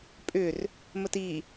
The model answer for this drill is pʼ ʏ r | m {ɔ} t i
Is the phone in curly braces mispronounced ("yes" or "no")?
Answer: yes